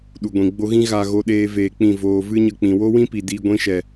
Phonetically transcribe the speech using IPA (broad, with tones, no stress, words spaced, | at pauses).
ɗu˨ɡʷĩ˨ɡ͡bo˧ ɣĩ˦ɣa˧ ɣo˧ɗeː˧ veː˧k͡pĩ˦˨voː˧ vɨ˦ɲə˧k͡pĩ˨ wo˦wĩ˦pi˨ diː˧ɡʷĩ˧ʃɛ˨